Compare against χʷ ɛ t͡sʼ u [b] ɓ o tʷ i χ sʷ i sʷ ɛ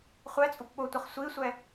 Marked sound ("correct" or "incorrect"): incorrect